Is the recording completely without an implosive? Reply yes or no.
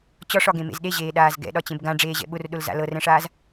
no